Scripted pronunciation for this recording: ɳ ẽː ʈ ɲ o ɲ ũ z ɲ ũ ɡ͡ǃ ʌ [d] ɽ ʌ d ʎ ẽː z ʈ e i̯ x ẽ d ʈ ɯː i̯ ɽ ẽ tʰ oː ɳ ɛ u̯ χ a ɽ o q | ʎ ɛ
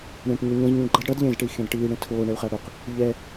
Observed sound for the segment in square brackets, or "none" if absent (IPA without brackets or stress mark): d